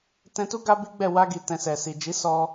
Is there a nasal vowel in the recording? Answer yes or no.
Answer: yes